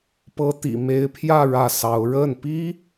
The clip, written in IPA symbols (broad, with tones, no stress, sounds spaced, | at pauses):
p ɤ˧˥ t̪ ḭ˨˩ m e˧˥ ɪ̯ pʰ j ä˥˧ ɻ ä˥˩ s ɑ˧˥ ʊ̯ ɻ ə˥˩ n p i˥